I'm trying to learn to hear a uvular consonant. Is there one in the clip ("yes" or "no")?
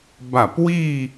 no